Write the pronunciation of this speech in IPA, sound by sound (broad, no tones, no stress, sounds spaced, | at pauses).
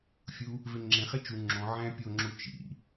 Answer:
fʲ u | v e ŋ͡ǁ ẽ χ e t͡ʃ u ŋ͡ǁ õ ʕ æ̃ pʲ o ŋ͡ǁ u t͡ʃ ḭ